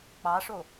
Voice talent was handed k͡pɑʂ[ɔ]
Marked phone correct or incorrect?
incorrect: o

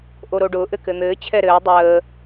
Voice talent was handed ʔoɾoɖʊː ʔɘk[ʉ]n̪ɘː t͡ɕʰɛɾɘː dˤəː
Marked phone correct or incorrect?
incorrect: ɘ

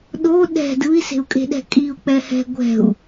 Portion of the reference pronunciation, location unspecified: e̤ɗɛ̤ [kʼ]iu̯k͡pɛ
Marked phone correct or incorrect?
correct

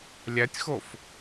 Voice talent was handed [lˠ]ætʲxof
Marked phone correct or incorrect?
incorrect: lʲ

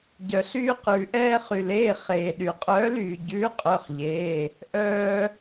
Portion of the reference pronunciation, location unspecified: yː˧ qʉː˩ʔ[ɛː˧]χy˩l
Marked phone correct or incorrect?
correct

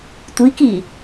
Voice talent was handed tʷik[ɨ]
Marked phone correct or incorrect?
incorrect: i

